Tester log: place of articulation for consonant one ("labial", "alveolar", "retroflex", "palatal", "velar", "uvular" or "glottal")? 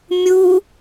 labial